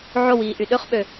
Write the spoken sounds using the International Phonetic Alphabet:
ʕ o w iː ʔ y ɗ ø χ ɓ ø

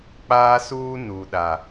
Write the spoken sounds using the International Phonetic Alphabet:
k͡p aː˦ s uː˦ n uː˨ ɗ a˨

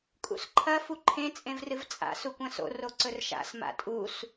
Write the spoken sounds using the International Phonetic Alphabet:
kʼ ṵ s ǃʰ ɐ f u ǃʰ ẽ t͡sʼ ẽ v r ɨ v t͡sʼ a̰ s u kʷ ɐ̃ s o̰ r o ǀ ɵ r ʃ a̰ s m a̰ tʼ u s

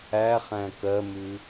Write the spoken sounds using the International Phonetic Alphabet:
æ χ æ̃ k ɜ m ʉ

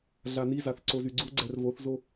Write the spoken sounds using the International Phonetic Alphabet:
ɮ a n i z a θ ǀ o z y ɡ͡ǀ u ɡ͡ǀ ɛ r v o θ z o

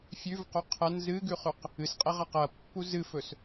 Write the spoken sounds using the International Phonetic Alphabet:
fʲ ʉ v q o qʰ ɐ n z ɨ ɡ ʉ χ ʉ q | ɨ s qʼ e ʁ a q ɐ pː u z ɨ f ɵ s

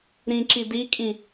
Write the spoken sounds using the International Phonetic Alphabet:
ɾ ĩ ǁ i d i kʼ ĩ

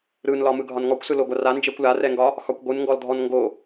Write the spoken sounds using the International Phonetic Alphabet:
ɾ ɯ n l ɒ m ɯ ɡʱ ɒ n ŋ ɔ kʷ s ɯ l o ɡʷ a r a n d͡ʒ ɛ kʷ l a r ɛ ŋ ɡ ɒ | x ɒ kʷ ɡʷ ɯ n ŋ ɡ ɔ l dʱ ɔ n ŋ ɡ o

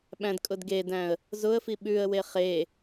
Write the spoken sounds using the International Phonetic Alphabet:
ɓ æ̃ d kʼ ʊ d ɡ e d æ̃ ə̯ | z ʊ ə̯ f i ɓ ʉ ə̯ w e χ e

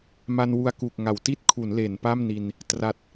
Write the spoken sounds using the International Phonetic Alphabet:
m a˧ n w u˧ a̯ k u˨˩ k̚ ŋ a˩˦ w t i˥˩ t̚ kʰ u˩˦ n l e˩˦ n p a˥˩ m n i˧ n | t r a˨˩ t̚

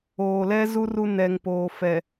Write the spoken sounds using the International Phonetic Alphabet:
oː˨ l ɛ˦ z u˦ r u˦ n ɛ˨ ŋ p oː˨ f ɛ˨

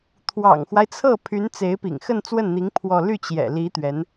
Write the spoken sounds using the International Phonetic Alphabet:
t̪ʰ w ɑ̰˨˩ ŋ x w a˦ ɪ̯ t͡sʰ ɤ˥˩ pʰ y˧˥ n t͡s e˧˥ ɪ̯ p ḭ˨˩ ŋ x ə˥˧ n t͡s w ə˥˩ n n̪ i˧˥ ŋ pʰ w ɔ˥˧ l y˥˩ t͡ɕ j ɛ̰˨˩ l i˧˥ t̪ ɥ ɛ˧˥ n

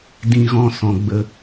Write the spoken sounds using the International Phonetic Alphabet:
d ĩ˦ ɣ ɔ̃˦ s ɔ̃˨ ɡ͡b ə˧

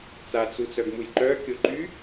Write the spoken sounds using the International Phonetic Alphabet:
t͡s a t͡s u t͡s œ ɡ m u j ǃ œ kʲ o ǃ y

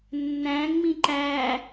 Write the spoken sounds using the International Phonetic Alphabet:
nː æ̃ ŋ͡m ĩ ǃ æ

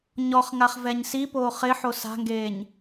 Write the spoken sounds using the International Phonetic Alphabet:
ɲ ɔ χ ŋ a χ v ɛ ɲ s i p oː χ ɪ ħ o s a̤ ŋ ɡ eː ɲ

